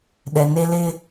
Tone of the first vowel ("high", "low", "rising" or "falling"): low